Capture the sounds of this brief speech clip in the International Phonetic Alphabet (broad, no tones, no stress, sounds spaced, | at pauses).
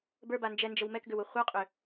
b ə˞ b a n d͡ʒ ɛ n d͡ʒ ə w m ɛ k ɡ ʏ w u χʷ ə˞ qʼ ʏ